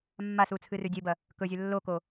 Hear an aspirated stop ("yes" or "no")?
yes